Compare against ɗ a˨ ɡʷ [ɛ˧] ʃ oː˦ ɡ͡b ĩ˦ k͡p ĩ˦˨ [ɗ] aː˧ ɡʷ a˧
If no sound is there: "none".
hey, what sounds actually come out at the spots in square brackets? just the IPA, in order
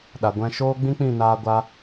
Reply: ɛ̃˧, n

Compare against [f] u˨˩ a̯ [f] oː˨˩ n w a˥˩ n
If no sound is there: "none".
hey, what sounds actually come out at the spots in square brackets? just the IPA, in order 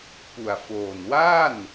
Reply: p, f

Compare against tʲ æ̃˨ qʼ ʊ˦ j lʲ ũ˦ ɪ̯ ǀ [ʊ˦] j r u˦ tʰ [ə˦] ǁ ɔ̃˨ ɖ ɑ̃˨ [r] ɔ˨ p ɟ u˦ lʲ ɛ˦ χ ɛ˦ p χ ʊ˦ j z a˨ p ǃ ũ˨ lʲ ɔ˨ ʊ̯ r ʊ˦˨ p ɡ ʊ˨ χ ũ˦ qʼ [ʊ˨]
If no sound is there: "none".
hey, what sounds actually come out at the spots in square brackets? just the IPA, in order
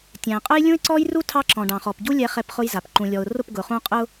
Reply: ɔ˦, ɑ˦, χ, ʊ˦

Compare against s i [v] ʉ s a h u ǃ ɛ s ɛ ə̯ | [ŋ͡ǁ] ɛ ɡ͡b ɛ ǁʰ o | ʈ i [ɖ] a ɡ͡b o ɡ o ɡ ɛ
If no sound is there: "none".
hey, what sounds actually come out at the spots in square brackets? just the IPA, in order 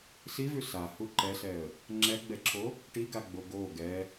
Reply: v, ŋ͡ǁ, ɡ

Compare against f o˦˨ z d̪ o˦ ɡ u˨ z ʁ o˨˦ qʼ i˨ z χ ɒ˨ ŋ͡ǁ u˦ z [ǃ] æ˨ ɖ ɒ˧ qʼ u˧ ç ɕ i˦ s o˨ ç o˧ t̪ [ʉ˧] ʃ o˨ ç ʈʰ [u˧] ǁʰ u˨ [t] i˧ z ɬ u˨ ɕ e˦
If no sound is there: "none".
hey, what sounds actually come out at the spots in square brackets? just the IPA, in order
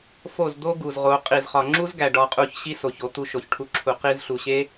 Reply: ɡ, u˧, u˧, q

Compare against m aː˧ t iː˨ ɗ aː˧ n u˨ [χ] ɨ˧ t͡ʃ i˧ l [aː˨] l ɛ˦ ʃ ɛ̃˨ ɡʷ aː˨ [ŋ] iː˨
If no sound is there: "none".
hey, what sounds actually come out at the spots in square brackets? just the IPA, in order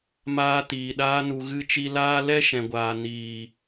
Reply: ɣ, aː˦, n

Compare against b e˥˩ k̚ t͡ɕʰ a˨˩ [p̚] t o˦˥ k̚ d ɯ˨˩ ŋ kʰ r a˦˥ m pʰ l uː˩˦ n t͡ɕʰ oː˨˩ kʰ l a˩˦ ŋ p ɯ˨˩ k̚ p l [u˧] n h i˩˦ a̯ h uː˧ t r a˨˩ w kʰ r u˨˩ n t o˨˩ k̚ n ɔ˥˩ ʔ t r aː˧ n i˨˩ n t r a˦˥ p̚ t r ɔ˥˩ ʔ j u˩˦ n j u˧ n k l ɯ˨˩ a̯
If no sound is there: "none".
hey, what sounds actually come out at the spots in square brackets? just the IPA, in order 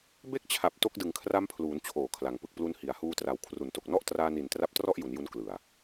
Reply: p̚, u˧

